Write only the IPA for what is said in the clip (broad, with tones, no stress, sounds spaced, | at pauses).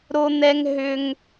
ɾ o˦ n̪ ɛ˦ ŋ ɦ ʏ˦ ŋ